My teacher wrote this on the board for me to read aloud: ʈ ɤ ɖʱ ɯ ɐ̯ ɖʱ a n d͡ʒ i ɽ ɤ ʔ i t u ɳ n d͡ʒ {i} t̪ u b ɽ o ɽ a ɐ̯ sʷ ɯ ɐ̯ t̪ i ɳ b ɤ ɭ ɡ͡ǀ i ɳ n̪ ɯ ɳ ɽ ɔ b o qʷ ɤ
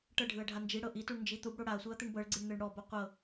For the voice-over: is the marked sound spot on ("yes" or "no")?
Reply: yes